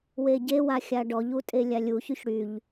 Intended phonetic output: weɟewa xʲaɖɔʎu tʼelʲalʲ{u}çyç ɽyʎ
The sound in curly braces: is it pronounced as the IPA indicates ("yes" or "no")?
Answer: yes